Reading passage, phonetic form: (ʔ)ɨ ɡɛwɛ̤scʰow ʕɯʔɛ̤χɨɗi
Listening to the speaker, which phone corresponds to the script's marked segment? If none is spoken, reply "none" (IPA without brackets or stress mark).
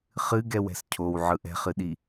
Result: χ